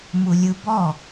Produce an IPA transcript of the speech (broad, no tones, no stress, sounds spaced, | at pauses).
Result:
m u lʲ ɯ b ɔ